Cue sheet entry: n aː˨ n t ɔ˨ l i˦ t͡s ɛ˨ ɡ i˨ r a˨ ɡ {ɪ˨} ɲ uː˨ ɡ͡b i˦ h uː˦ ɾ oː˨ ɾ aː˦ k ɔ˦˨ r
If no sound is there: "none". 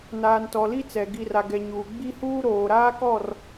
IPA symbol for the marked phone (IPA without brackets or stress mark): ɛ˨